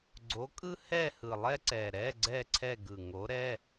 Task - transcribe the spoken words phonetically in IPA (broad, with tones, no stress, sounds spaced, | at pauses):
ɡ͡ǀ o˨˥ kʼ ɯ˥ h ɛ˥˧ h ɯ˨˩ lˠ ɛ˥ ǀ ɛ˨˩ ɾ ɛ˧˥˧ ɡ͡ǀ ɛ˥˧ ǀʰ ɛ˥˧ ɡ ɯ˨˩ ŋ o˨˥ ɾ ɛ˧˥˧